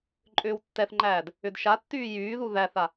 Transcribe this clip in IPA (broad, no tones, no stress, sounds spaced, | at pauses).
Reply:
ǃʼ ʏː w tː ɛ θ ŋ͡ǃ æː d | ʏ d ʃ a tː yː j yː ð u ð æ θ a